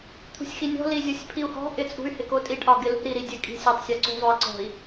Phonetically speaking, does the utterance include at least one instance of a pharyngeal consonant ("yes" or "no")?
no